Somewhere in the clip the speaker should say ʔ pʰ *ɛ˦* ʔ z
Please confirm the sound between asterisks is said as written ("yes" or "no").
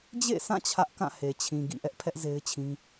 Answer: yes